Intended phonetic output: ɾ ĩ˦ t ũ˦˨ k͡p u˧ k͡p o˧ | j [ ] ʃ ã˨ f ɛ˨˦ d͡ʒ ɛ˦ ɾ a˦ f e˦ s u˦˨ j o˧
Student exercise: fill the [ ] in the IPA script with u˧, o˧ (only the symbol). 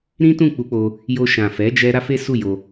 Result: o˧